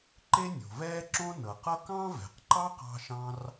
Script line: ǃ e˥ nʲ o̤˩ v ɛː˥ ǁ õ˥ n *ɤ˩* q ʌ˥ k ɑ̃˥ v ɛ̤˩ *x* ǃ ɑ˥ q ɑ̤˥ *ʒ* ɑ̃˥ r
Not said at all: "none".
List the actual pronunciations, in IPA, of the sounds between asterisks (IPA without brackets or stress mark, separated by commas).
ɤ˩, q, ʃ